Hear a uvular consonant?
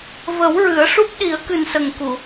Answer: no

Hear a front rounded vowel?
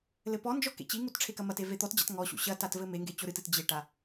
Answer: no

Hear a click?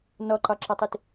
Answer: yes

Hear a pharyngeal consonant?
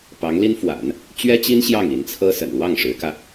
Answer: no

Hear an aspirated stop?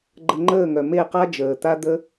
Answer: no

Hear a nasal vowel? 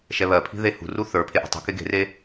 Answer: no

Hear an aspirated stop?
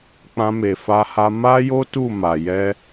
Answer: no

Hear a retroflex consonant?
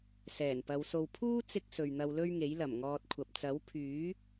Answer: no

